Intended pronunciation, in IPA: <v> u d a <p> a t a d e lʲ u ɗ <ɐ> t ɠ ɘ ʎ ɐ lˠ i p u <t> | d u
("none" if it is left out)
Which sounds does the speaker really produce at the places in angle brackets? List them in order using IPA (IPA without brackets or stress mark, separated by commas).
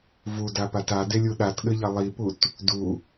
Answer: v, p, a, t